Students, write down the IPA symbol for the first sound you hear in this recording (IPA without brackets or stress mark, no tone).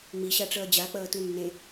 ŋ͡m